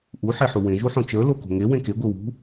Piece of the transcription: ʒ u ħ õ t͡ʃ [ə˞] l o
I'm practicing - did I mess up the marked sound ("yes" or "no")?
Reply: no